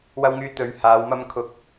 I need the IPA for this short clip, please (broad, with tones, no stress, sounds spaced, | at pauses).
w ɐ˧ w ŋ yː˨˧ t̪ ɵ˨˧ ɥ h aː˨˧ w m ɐ˧ m kʰ ʊ˧ k̚